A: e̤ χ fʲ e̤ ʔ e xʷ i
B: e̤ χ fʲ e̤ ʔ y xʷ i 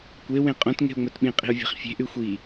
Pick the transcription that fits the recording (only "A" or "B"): B